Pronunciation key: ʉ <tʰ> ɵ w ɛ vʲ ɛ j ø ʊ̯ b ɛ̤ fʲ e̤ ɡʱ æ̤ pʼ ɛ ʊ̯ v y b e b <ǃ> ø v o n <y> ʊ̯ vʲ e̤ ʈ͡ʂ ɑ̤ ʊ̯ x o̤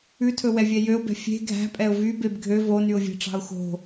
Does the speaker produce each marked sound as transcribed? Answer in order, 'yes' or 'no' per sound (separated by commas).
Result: yes, no, yes